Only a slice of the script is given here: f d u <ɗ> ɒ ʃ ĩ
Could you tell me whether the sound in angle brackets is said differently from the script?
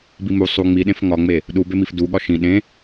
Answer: yes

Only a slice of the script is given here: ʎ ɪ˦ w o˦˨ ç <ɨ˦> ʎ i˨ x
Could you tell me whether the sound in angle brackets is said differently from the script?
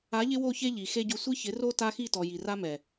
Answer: yes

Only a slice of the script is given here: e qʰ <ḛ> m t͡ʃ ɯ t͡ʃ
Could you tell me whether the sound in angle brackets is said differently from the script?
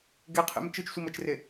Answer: no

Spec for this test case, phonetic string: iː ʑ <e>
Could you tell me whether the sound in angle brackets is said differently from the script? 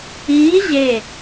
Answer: no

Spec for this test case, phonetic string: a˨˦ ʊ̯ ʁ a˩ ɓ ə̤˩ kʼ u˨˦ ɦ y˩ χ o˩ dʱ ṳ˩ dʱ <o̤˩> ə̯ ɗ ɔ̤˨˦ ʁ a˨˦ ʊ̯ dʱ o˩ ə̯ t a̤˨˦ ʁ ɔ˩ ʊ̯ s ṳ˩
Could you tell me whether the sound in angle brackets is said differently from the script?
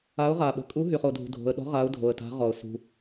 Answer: no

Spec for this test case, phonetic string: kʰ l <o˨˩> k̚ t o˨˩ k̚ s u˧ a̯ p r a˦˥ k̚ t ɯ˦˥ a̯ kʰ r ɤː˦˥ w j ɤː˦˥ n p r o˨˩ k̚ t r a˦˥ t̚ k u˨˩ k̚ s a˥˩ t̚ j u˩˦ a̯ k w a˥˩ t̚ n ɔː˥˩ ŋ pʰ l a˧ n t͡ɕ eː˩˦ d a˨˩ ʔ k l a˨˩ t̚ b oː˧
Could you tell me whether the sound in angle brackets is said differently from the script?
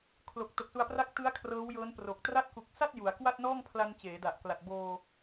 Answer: no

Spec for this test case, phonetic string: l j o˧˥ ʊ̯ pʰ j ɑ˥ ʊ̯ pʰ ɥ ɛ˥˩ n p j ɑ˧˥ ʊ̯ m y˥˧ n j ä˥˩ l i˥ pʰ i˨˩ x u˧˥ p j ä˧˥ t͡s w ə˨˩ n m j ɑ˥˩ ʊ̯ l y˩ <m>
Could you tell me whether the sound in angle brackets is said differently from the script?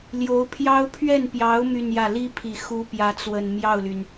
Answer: yes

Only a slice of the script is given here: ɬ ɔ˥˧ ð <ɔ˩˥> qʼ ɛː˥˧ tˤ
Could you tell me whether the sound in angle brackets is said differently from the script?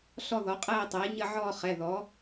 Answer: no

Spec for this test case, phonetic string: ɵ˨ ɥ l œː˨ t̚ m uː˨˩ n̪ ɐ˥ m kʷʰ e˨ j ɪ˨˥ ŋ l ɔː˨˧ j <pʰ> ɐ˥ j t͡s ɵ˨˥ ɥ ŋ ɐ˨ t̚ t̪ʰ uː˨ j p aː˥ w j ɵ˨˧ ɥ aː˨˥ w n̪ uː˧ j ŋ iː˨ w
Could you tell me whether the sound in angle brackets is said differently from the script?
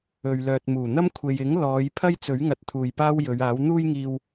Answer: no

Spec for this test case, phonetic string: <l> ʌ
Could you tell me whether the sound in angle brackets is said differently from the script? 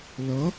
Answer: no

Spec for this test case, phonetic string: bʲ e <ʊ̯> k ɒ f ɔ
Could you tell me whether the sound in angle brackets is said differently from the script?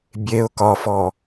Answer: no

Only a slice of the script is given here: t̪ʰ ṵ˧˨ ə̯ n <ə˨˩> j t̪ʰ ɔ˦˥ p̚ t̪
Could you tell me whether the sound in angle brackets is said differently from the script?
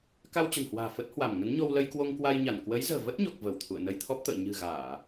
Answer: yes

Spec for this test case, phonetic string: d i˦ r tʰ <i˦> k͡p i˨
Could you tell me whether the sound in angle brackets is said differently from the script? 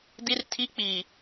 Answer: no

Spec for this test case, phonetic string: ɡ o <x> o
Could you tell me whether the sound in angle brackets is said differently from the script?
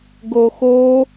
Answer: no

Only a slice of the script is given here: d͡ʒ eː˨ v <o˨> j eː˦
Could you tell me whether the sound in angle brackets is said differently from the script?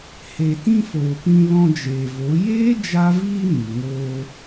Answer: yes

